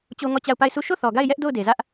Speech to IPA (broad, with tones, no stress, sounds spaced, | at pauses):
t͡ɕ o˦ ŋ ɔ˦˨ t͡ɕ a˦˨ ʊ̯ p a˦˨ ɪ̯ s u˦˨ ʃ o˦˨ θ ɔ˨ ɡ a˦˨ ɪ̯ j ɛ˦ ʔ d o˦˨ ʊ̯ d e˨ z ä˦ ʔ